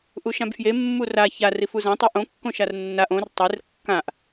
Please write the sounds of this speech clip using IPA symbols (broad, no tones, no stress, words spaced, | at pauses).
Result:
ʔuʃãbfje mːura ça rifuzã tˤoʔõ kːõʃarnːaʔ õr tˤer kːãʔ